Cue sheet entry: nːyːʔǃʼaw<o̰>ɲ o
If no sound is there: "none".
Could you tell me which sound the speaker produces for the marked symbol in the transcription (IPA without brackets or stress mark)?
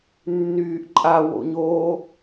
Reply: o̰